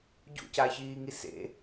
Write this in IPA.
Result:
ɟ ṵ c a ç iː ŋ i s ḛ

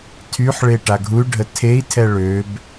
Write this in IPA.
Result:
tʰ y ħ ɭ e ʈ a ɡʱ u y̯ ɖʱ ə tʰ e i̯ tʰ ɛ ɭ ø b

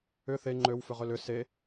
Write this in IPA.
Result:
ʏ θ e ŋ͡ǃ ø w f ʏ ʁ ø l ʏ s e

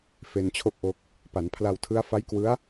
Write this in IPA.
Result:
f e˧ n t͡ɕʰ o˥˩ k̚ ʔ o˦˥ k̚ | p a˩˦ n pʰ l a˧ w tʰ ɯ˦˥ a̯ f a˦˥ j k w ɯ˦˥ a̯

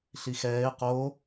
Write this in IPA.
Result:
ɬ i x ɛː ɪ̯ q o

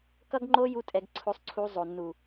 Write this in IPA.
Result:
k ʌ˦ ɡ ŋ͡ǃ o˦ j u˦ tʼ ɛ˧ ɡ ǀʰ o˧ sˤ ǀʰ u˧ zˤ o˨ nː u˨

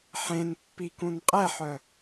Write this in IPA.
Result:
ħ ẽ n pː i k ũ n qʼ ɛ ħ œ

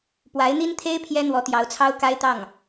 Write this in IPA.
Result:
p w a˧˥ ɪ̯ n̪ i˥ n t̪ʰ e˥ ɪ̯ pʰ j ɛ˥ n̪ w ɔ˧˥ t̪ j ɑ˧˥ ʊ̯ t͡sʰ ɑ˥ ʊ̯ k a˥ ɪ̯ t̪ ɑ˥˩ ŋ

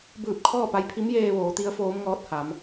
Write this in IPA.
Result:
b ɯː˧˩ p̚ kʰ ɔː˥˨ p a˧ j pʰ i˧˥ m j eː˧ ʋ oː˩˧ t̪ i˧˥ ə̯ f oː˧˥ m ŋ ɔː˧˥ t̚ h a˩˧ m

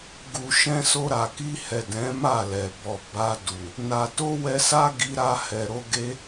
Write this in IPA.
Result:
ɡ u˨ ʃ ɛ̃˧ s o˧ ɾ a˨ k i˧ h ɛ˨ d ɛ̃˨˦ m a˦˨ l ɛ˨ b ɔ˨ b a˧ d u˨ | n a˨ t o˧ w ɛ˧ s a˦ ɡ i˧ ɾ a˧ h ɛ˨ ɾ o˧ ɡ e˦

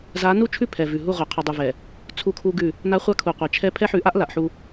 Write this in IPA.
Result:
z a˨˦ n u˦ t͡ʃʰ ʉ˦˨ pʰ ɛ˨ v ʉ˨ ɦ u˦˨ ʁʷ a˨ qʰ u˨ dˤ u˨ v ɛ˨ | t͡sʰ u˦ kʰ u˦ ɡ ʉ˦˨ | n a˦ χʷ a˦ kʰ u˨ qʷ ɛ˨ t͡ʃʰ ɛ˦ pʰ ɛ˦ ħ ʉ˨˦ ʔ a˦ ʔ l a˨ ʔ ħ u˦

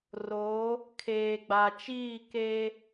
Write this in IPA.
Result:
r oː˨˦ | kʰ eː˨ ɡ͡b a˨ t͡ʃ iː˦˨ k eː˦

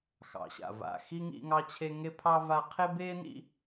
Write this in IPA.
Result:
x ɑ̰˩ ɕ a̰˩ v a̰˨ x i˦ ŋ ḭ˦ ŋ ɑ˦ t͡ɕʰ e˦ ŋ e˥ pʰ ɑ˥ v a˦ qʰ e˥ b eː˥ n ḭ˦

